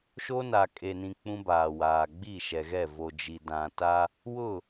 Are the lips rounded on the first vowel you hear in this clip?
yes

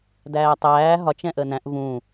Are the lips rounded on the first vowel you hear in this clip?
no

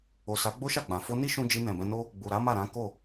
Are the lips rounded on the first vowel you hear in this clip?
yes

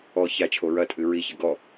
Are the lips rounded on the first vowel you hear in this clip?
yes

